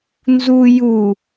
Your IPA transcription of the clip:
n z u j u

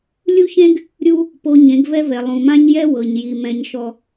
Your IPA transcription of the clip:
lʲ u˦ ç ẽ˦ ɡ | ɾʲ u˦ | p o˨ ɲ ẽ˨˦ ɡ v ɛ˦ v ɛ˨ lˠ ũ˨ m ã˦ ɲ j ɛ˦ w ɤ˨ ɲ j i˨ m ɛ̃˨ ɲ ʃ ɔ˨

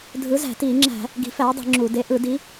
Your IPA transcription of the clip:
dʱ ɯ˨˥ z æ̤˧˩˧ t iː˧˩˧ ŋ͡ǁ æ̤˧˩˧ | ɡ i̤˨˥ f æː˨˥ dˤ i̤˧˩˧ ŋ͡ǁ u˧˩˧ d e˨˥ ʔ ɯ˧˩˧ d i˨˥

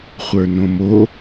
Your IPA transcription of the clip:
χʷ ə˞ n õ m o

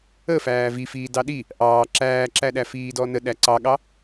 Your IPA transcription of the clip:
ə f æː v i f iː d ɑ ɗ i | ʔ ɑː ǁ æː ǁ æ ɗ æ f iː d ɔ n ə ɗ æ ǀ ɑ ɠ ɑ

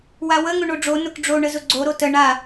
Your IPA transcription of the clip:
w a w ə ŋ ʊ ɳ o ɖ͡ʐ o n ʊ k ɖ͡ʐ o ɳ ə z ʊ ɡ͡ǀ o ɾ o t ə ɳ a

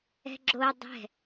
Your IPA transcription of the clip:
ɛ̤ ɡ͡ǁ o dˤ ɛ̤

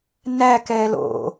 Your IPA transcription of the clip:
n æ k ɛː l o̰

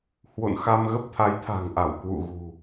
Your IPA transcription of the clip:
h w o̰˧˨ n x a˧ m ɣ ə˦˥ p̚ t̪ʰ a˨˦ j t̪ʰ a̤˨˩ ŋ ʔ a˧˩ w k w ṵ˧˨ ɣ ṳ˨˩

